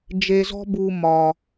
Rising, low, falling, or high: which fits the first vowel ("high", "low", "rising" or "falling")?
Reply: low